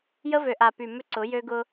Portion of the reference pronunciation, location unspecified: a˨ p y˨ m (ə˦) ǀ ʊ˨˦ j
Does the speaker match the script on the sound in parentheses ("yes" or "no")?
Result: no